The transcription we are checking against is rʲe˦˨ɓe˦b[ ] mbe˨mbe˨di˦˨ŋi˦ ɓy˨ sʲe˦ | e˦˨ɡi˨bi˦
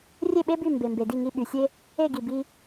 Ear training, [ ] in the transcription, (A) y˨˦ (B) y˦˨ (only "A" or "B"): B